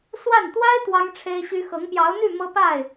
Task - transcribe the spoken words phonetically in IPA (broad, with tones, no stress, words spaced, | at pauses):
swa˥˩n t̪wa˥ɪ̯ t̪wɑ˥ŋ ʈ͡ʂʰe˥ɪ̯ɕy˥ xɤ˧˥ŋpjɑ˧˥ʊ̯n̪y˥˩ mɤ˥pa˥˩ɪ̯